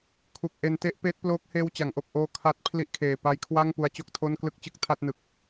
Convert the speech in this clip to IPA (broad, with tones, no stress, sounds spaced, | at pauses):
kʰ u˨˩ k̚ ʔ e˧ n t e˦˥ ʔ p eː˦˥ t̚ p l oː˦˥ k̚ h eː˦˥ w t͡ɕ a˩˦ ŋ ʔ o˨˩ k̚ ʔ oː˦˥ kʰ a˦˥ t̚ pʰ l i˦˥ ʔ kʰ eː˨˩ p a˧ j kʰ w a˥˩ ŋ p u˧ a̯ t͡ɕ o˥˩ k̚ tʰ o˥˩ n k l ɯ˥˩ k̚ t͡ɕ ɯ˥˩ k̚ tʰ a˥˩ t̚ n ɯ˨˩ k̚